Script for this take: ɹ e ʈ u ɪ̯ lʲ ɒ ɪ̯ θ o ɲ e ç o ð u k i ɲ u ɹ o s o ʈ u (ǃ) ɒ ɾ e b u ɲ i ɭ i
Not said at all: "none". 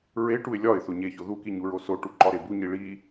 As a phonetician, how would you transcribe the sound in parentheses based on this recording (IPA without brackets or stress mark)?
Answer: ǃ